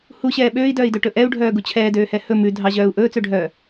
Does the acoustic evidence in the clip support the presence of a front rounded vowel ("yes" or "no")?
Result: yes